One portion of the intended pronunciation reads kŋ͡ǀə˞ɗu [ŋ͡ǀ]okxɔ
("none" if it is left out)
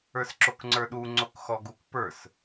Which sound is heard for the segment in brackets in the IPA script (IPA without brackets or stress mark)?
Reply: ŋ͡ǀ